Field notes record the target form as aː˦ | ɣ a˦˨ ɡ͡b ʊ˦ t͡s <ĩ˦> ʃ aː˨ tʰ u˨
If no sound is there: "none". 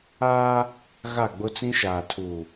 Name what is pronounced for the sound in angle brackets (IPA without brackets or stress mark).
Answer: ĩ˦